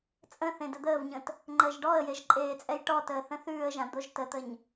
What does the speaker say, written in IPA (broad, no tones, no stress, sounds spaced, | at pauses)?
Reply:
t͡sʼ ə̃ θ ẽ d ə d̪ əː v ɲ ə̃ t | ŋ͡ǃ əː ʒ ɖ ɔ ə̯ j e ʒ ǃʼ eː t͡sʼ ɛ j ʈ ɔ t əː θ ə̃ θ ʉː ə̯ ʒ ã d̪ o ʒ t ə t̪ ə ɲ